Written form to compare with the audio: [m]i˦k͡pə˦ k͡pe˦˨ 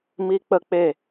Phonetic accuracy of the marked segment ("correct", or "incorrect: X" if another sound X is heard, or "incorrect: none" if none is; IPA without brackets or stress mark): correct